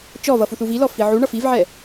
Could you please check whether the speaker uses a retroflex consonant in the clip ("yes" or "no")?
yes